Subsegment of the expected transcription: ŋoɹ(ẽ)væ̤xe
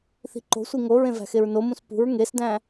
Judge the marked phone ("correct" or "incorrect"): correct